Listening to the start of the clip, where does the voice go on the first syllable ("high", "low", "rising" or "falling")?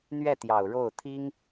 falling